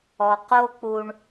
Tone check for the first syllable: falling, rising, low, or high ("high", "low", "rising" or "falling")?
low